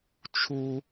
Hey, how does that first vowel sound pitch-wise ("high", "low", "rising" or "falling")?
high